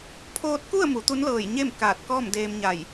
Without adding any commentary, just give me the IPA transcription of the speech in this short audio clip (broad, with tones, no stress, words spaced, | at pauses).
pʰoː˧t̚ku˥˨ə̯ mu˩˧t̪u˧˥nlɤː˧˩j ɲe˥˨m kaː˧˩t̚kɔː˥˨mdeː˧mɲa˧˩j